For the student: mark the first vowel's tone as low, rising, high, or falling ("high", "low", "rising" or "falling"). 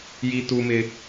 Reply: high